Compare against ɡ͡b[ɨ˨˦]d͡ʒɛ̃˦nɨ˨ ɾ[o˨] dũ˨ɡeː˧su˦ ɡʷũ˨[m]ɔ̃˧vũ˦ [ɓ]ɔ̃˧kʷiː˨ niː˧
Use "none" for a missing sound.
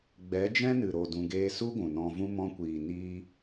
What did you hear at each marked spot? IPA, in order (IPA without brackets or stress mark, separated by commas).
ɛ˨˦, o˨, n, m